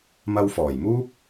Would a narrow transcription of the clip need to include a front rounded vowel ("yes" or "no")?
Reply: no